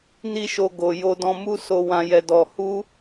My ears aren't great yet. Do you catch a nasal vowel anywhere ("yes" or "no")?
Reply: yes